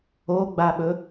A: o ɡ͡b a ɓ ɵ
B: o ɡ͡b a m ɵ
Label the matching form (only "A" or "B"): A